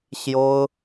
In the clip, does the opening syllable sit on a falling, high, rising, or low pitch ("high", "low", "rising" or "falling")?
high